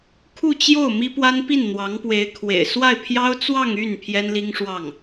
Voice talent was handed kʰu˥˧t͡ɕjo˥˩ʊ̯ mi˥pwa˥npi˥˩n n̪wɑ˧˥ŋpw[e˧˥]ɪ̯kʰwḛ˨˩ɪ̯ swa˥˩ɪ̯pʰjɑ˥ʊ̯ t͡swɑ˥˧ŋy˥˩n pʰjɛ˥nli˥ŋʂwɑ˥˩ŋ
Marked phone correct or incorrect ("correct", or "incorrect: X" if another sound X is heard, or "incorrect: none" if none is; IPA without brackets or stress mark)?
correct